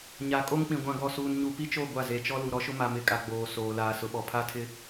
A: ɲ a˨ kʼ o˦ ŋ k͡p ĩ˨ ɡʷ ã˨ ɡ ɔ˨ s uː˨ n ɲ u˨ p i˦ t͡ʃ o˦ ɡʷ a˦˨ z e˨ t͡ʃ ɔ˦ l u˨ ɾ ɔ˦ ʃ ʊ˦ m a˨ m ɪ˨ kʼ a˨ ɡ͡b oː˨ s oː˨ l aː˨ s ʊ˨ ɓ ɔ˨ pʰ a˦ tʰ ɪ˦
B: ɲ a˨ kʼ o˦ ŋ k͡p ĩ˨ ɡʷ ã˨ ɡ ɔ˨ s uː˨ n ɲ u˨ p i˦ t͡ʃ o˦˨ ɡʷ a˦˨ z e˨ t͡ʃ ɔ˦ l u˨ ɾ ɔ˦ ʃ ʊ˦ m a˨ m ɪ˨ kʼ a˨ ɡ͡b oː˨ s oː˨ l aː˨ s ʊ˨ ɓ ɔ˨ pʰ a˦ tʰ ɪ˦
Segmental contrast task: B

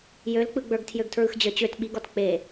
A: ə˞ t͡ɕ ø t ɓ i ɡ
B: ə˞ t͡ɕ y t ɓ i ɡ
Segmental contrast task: A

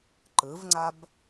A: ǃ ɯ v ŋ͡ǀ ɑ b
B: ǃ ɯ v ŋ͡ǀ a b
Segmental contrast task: B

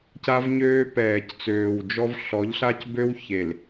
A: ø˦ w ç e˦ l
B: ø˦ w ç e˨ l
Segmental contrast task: B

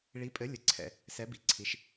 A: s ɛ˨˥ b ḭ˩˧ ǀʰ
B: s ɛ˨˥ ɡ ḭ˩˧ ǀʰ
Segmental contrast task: A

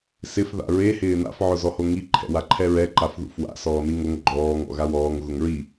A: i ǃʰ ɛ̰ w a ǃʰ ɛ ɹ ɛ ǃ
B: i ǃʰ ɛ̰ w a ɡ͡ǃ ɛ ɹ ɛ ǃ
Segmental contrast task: A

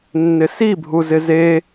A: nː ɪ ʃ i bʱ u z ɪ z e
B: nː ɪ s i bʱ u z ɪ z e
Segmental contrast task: B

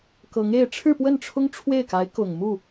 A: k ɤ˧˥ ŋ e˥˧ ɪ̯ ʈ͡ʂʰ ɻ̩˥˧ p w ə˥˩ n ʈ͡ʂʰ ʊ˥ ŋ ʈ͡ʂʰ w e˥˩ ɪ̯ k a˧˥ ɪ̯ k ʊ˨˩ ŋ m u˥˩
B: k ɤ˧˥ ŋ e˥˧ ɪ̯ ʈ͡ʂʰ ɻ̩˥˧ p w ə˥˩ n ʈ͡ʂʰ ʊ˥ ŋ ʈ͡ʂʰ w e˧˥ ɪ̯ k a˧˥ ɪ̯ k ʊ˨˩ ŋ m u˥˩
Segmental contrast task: A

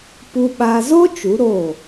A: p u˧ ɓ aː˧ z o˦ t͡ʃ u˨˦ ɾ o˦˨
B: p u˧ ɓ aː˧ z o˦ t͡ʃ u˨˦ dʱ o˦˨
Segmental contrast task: A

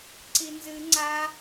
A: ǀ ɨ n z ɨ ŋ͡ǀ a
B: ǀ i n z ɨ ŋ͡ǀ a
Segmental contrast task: B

